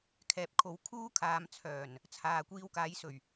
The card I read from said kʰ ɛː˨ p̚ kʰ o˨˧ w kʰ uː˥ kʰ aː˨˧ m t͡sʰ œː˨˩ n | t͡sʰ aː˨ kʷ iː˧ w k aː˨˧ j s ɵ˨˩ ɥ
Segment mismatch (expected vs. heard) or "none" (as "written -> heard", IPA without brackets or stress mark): none